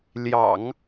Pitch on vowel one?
low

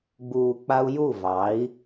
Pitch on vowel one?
low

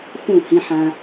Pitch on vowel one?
falling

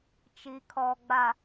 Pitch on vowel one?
low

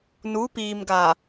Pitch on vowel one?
rising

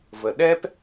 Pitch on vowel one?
low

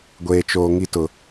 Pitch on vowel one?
low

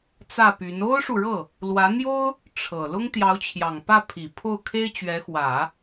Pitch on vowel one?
falling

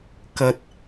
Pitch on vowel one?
low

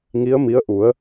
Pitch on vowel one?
rising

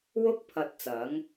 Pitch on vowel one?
high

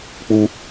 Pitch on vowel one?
high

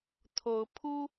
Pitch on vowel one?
rising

